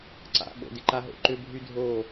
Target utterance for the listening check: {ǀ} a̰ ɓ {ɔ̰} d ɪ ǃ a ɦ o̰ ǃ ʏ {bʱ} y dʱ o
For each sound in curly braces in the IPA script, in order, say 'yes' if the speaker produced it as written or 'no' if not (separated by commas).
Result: yes, no, yes